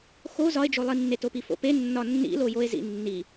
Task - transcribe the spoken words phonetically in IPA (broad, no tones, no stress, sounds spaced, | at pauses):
x o z ɒ e̯ d͡ʒ o lˠ i nː e t o p i f o̰ p e nː ɒ nː ḭ l o j o e̯ z ḭ nː i